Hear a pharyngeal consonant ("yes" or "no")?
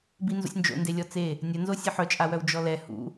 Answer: yes